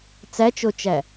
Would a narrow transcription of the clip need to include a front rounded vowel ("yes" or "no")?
no